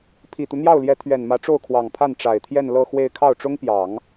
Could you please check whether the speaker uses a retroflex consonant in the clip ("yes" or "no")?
yes